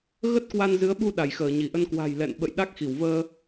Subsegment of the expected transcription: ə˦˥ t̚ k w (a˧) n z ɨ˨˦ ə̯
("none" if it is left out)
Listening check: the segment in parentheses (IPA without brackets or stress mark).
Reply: a˧